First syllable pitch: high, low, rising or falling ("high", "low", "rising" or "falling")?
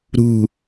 falling